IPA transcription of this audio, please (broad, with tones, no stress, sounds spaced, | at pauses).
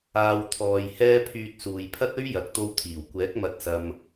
aː˨ w t̪ʰ ɔː˨ j h ɛː˧ pʰ yː˨ t̚ s uː˨ j pʰ ɐ˥ t̚ ɵ˥ ɥ j ɐ˨ k̚ t̪ o˧ w t̪ʰ iː˨˩ w kʷ ɛː˨˥ k̚ m ɐ˧ t̚ s ɐ˧ m